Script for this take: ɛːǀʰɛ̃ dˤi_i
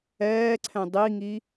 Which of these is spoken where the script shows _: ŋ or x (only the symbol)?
ŋ